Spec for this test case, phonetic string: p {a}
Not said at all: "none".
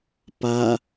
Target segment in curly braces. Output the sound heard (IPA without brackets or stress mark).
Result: a